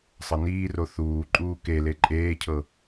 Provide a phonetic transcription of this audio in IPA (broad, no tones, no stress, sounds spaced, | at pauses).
sˤ ɤ n iː r o θ uː ǃʼ uː k e l e ǃʼ eː cʰ ɤ